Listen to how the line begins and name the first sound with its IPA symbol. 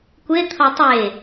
kʷ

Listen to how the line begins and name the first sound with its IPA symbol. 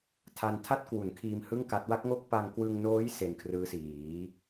tʰ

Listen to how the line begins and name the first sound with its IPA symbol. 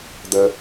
d̪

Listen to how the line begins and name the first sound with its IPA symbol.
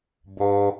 b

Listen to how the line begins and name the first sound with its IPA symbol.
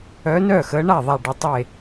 œ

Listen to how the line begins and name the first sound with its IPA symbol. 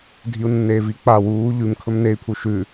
dʱ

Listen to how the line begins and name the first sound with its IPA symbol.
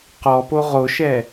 q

